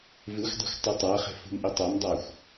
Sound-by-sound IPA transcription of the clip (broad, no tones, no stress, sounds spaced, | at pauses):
v ɨ xʷ dˤ ṳ xʷ tˤ ʉ tˤ a χ e̤ f ṳ m ʔ i tˤ a m dˤ a xʷ